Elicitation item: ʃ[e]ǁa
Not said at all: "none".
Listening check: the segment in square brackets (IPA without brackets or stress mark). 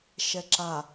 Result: ɛ